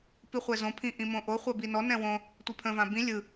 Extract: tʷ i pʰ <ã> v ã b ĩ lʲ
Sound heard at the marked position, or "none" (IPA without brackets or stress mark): ə̃